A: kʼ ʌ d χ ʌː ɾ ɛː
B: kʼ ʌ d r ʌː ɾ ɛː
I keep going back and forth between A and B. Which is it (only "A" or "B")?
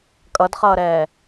A